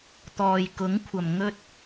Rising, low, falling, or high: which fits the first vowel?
low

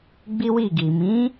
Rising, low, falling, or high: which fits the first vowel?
high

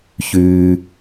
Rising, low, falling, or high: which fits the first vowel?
high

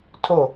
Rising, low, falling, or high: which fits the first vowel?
falling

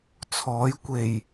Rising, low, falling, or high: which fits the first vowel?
rising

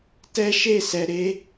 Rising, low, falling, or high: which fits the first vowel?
high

